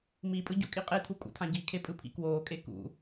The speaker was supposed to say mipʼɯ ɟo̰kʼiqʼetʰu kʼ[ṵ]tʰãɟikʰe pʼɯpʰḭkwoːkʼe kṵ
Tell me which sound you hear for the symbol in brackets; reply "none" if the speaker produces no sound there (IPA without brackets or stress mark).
ṵ